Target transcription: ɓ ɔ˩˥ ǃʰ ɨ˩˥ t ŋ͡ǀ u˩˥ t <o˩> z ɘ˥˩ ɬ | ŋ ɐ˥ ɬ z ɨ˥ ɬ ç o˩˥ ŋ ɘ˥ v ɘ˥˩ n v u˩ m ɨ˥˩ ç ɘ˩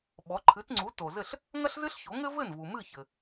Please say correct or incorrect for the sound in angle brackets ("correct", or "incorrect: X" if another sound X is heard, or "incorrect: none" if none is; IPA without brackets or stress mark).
correct